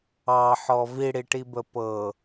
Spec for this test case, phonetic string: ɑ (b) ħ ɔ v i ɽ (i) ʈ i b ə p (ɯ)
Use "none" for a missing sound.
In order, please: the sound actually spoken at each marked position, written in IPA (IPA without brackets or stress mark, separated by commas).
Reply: none, i, ɤ